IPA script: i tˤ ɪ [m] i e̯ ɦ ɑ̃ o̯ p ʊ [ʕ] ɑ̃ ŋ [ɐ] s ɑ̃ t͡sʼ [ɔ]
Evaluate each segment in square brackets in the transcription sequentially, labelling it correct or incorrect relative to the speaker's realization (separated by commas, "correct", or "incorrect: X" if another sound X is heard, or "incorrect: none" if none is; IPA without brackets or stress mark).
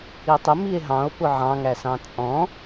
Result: correct, correct, incorrect: æ, incorrect: ɔ̃